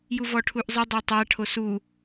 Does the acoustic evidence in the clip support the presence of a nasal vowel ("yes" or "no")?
no